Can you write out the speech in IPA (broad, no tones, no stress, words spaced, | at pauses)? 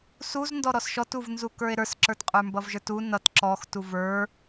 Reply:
suzndɔ ɾɔsʃɔtuv nzukə˞e̯ɾə˞sǁə˞t qʼə˞mbʌvʒə˞tu nʌt ǁɔx tuvə˞